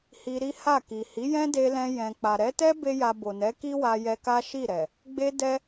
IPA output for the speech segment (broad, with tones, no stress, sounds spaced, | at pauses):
h i˧ ɾ i˦ h a˦˨ k i˨ h i˨˦ j ɛ̃˦ d e˧ l ɛ̃˧ j ɛ̃˨ k͡p a˨ ɾ ɛ˨˦ t ɛ˦ b e˦ j a˧ b o˨ n ɛ˨˦ k i˦ w a˧ j ɛ˧ k a˦ ʃ i˦˨ ɾ ɛ˨ | ɡ͡b e˦ d ɛ˦